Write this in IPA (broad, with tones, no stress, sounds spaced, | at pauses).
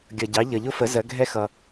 ɡʲ ʌ˩ ɟ ɑ˩˧ ʎ ʌ˩ ʎ ʊ˧ f ə˩˧ z ɜ˩˧ ɡʱ ɛ˧ x ʌ˩